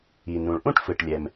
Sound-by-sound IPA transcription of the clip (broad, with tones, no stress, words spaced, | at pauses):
i˩ nũ˩ɭʔũ˥ʈfɯ˩ʈlʲɛ˩m